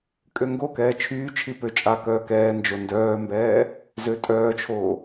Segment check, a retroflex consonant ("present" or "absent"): absent